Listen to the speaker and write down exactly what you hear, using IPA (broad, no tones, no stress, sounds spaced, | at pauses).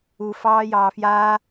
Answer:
u f ɑː j ɑː f j aː